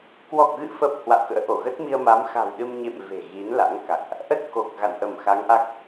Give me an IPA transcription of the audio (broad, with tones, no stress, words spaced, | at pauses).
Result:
kwɔ˨˩k̚ɣɨ̰˧˨fə˨˩p̚ hwa̰˧˨wkə̰ː˧˥ʔo˧˩ ɣə˦˥t̚mi˧ə̯ ma˨˦mxa̤˨˩wɗɨ˧m ɲḛ˧˨m ve̤˨˩ɣi˨˦nla̰˧˥ŋka̰˧˨ŋʔ | ʔə˦˥t̚ ko˨˩k̚ ɣa̰˧˨nʔə˧˩mxa˨˦ŋʔa˦˥k̚